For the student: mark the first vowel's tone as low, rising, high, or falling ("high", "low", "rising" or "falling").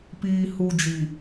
low